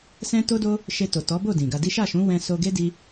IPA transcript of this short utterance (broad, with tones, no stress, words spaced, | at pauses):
sɛ̃˦to˦do˦ | ʃe˧to˨ tɔ˨˦bo˦˨ dĩ˨ɡa˧di˦ ʃa˦˨ʃũ˨˦wɛ̃˧ so˧ɡe˦di˧